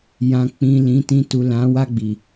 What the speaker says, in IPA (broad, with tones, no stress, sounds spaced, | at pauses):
j ã˨ k͡p ĩ˨ l ĩ˨˦ t ĩ˧ t u˨ l ã˨˦ w a˦˨ ɡ͡b i˨